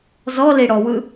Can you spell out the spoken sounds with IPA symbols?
z ɔ l i ɽ ɔ w ɯ

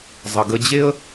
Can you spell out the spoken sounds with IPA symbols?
zˤ ə˩ ɡ ə˧ d͡ʑ e˥ ə̯

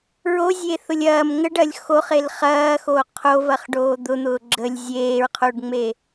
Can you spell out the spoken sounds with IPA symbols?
ɹ o zʲ e θ ʊ lʲ ɐː m ŋ ə ɖ ɐː lʲ x o χ e l χ ɐː x o qʰ o v ɐ χ ɖ oː d̪ ʊ n̪ ʊː ɡ͡ǁ ə lʲ zʲ eː ɹ qʰ o ɖ ŋ͡m e

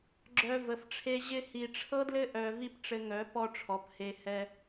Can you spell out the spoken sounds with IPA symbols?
ɡ͡ǁ œ˧ v ə˨ f ʈ͡ʂʰ e˦ ʑ ɪ˧ h i˨ ʈ͡ʂʰ ɤ˦ d l ɘ˦ ʔ œ˧ v i˦ p ʈ͡ʂ ɘ˧ ŋ œ˨˦ p ɔ˦ ʈ͡ʂʰ ɔ˨˦ p h e˧ h ɛ˧

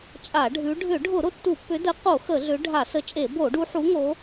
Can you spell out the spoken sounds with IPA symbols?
t͡ʃʼ a˧˩˧ ɖʱ ʉ˨˦ ɖʱ ʏ˧˩˧ ɖʱ ʊ˧˩˧ ɾ ʊ˨˦ tː u˧˩˧ pː ʏ˨˦ d ə˨˦ q o˧˩˧ x ə˧˩˧ ɮ ʏ˨˦ ɖʱ a˧˩˧ s ə˨˦ t͡ʃʼ e˧˩˧ b o˧˩˧ ɖ u˨˦ ħ u˨˦ ŋ o˨˦

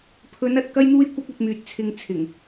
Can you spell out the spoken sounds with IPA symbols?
pʰ ɵ˨˧ n ɐ˨ t̚ k ɐ˥ j n̪ uː˥ j kʷ ɐ˥ k̚ ɐ˧ t̚ m yː˨ t̚ t͡sʰ ɪ˧ ŋ t͡sʰ ɪ˨˩ ŋ

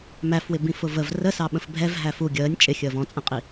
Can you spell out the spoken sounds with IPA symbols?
m æ f w ɪ b ĩ f ʊ v ə v r ə s ɑ ɓ ə̃ f bʱ ɛ v ɦ æ f u ɡʲ əː nʲ t͡ʃʼ ɪ xʲ əː v ɔ̃ t͡sʼ ə̃ qʼ i

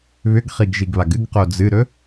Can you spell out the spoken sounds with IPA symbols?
β ʏ ɡ χ i ɡ ʒ i ɡ β a ɡ ɨ ɡ q o d͡z ɨ ɾ ɵ

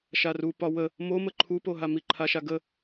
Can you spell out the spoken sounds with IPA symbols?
ʃ a r u p ɒ w ə | m o m ə ǃʰ u p o ɦ a m i ǃʰ a ʃ a ɡ ə

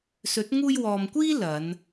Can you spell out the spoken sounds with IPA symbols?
s ɵ˨˥ t̚ ŋ uː˧ j w ɔː˨ m kʷ iː˥ l ɐ˨˧ n

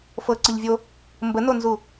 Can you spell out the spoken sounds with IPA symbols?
f ɤ ǀ ə ʎ vʲ o | m b ə n o n z u

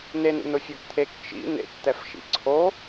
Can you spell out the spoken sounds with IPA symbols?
n e n ṵ n ʊ fʲ o ɡ t̪ʰ e k t͡ʃ ḭ n ḛ k t̪ ɛ f ʃ ḭ ǀʰ o

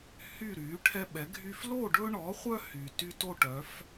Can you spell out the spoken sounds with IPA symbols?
h y˥˨ ɾ y˩˥ ʈʰ ɛ˦ ɓ ɛ˩˥ ɡʱ y˦ f l o˥˨ ɖ ɵ˦ ɳ ɔ˩˥ χʷ œ˦ h y˩ t y˦ t o˥˨ ʈ œ˩˥ f

